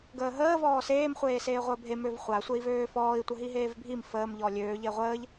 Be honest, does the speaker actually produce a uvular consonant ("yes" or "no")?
yes